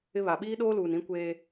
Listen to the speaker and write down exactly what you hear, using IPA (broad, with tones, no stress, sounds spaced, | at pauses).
ɪ˦ β a˨ ɓ iː˦ ɗ oː˦ l uː˨ n ĩ˦ kʷ eː˦